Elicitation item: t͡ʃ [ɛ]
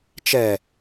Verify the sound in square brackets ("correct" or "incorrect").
correct